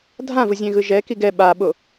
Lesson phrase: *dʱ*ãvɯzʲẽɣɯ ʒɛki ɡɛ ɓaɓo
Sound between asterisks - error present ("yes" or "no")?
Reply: no